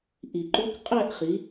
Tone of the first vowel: low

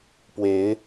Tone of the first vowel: rising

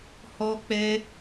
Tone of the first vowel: high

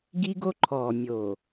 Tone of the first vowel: high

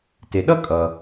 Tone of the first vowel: low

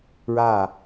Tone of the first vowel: falling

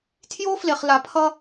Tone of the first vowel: high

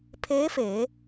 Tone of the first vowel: rising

